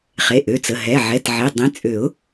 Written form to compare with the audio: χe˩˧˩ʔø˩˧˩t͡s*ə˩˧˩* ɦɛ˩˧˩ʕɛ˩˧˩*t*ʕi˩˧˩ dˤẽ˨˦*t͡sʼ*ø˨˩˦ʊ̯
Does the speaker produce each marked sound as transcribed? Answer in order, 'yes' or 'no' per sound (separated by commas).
yes, yes, yes